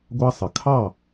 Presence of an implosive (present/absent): absent